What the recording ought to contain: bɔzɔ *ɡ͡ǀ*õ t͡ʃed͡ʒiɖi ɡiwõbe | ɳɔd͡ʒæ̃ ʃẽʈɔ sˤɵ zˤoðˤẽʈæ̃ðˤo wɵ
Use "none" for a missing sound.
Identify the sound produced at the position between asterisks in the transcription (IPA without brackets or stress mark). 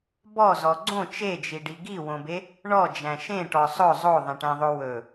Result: ɡ͡ǀ